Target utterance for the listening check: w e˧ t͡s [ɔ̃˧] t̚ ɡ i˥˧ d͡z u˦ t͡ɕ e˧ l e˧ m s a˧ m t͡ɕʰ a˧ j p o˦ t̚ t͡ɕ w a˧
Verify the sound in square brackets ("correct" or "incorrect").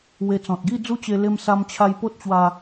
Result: incorrect